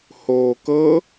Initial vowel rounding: rounded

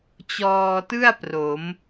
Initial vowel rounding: rounded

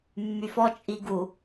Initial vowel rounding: rounded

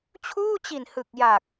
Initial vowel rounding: rounded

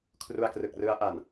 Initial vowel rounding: rounded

